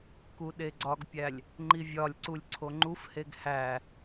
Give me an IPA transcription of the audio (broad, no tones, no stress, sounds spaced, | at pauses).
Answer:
k u ɗ e ɡ͡ǀ ɒ ɡ pʲ æ lʲ | ŋ͡ǃ i vʲ ɒ lʲ ǀ u lʲ ǀʰ o ŋ͡ǃ u f h e ɡ h æ